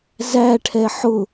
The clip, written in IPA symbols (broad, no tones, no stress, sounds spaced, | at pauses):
z æ ʈʰ ɛ ħ ʊ